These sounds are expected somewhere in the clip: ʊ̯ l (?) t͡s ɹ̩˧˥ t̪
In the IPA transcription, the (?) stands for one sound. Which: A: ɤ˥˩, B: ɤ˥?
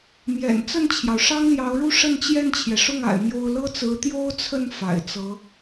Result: B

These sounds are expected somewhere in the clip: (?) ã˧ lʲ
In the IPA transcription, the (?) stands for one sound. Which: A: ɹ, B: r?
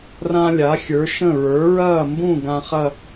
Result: B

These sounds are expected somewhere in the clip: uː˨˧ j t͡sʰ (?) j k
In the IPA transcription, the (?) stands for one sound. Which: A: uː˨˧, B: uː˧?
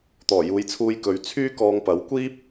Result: B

